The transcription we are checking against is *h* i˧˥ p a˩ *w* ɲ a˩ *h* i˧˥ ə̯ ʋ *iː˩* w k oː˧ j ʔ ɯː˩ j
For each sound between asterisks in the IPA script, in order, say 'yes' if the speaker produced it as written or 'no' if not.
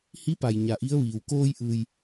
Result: yes, no, no, yes

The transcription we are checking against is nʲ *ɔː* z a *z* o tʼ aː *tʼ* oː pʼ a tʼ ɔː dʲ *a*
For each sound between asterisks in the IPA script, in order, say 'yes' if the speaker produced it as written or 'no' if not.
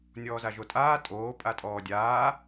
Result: yes, no, yes, no

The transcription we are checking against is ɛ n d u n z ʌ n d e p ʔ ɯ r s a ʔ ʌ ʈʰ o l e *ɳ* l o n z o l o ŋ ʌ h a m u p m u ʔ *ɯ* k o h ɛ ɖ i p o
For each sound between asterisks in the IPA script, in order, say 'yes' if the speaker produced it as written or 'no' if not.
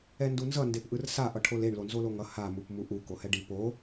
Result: yes, no

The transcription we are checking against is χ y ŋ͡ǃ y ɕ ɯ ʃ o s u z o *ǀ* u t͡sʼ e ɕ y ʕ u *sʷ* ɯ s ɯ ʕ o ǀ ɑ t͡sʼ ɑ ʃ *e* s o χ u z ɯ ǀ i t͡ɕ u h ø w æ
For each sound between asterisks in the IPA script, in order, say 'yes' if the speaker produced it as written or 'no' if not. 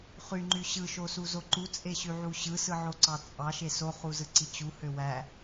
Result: no, no, yes

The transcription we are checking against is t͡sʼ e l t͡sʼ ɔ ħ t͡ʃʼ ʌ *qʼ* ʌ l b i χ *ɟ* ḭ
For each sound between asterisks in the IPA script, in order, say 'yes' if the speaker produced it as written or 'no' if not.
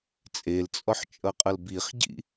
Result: yes, yes

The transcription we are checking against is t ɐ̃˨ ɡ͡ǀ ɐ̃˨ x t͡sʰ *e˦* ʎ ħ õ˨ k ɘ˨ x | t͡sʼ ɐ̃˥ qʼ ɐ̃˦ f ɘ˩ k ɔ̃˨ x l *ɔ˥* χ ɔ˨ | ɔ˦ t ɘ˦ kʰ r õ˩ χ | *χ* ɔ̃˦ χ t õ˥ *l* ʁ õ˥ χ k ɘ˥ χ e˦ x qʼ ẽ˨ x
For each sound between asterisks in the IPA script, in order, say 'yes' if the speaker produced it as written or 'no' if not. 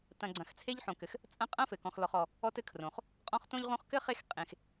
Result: yes, no, no, no

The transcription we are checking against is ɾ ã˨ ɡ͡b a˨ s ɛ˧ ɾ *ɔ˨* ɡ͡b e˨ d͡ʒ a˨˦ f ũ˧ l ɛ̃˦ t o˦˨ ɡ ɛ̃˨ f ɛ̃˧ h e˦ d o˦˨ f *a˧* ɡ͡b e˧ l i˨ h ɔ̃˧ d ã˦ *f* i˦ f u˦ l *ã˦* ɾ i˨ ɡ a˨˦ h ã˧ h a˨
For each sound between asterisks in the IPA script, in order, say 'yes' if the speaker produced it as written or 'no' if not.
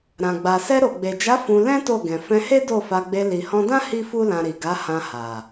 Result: no, yes, no, no

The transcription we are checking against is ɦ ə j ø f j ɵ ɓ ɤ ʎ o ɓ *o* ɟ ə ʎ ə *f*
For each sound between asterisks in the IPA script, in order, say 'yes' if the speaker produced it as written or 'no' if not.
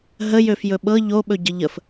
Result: no, yes

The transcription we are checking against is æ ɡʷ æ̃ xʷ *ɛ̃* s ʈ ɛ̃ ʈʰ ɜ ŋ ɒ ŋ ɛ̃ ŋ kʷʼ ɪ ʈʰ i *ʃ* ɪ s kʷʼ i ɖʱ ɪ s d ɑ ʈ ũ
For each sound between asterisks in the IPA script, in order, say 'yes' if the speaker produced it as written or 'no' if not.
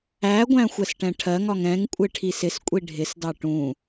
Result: no, no

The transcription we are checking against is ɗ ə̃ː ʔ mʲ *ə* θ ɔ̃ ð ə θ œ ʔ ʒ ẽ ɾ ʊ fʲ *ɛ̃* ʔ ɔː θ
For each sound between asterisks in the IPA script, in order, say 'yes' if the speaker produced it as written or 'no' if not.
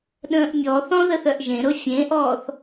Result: no, no

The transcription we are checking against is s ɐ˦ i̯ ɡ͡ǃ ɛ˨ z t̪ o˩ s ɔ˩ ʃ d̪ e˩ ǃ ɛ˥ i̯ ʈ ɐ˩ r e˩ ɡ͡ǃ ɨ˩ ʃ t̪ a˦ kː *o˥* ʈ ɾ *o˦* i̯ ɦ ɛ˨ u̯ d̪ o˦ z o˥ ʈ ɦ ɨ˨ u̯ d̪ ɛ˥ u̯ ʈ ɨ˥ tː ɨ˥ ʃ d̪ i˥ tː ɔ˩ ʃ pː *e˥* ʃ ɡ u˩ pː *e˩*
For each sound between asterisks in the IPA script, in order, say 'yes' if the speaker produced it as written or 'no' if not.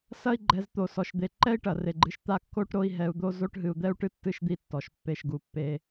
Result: yes, yes, no, no

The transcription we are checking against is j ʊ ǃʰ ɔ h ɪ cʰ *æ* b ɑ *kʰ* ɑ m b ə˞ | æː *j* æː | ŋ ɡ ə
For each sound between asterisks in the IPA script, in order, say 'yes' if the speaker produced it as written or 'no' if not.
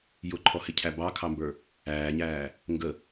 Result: yes, yes, no

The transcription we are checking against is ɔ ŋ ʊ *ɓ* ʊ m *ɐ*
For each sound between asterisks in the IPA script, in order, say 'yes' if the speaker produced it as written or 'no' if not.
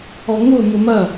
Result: no, yes

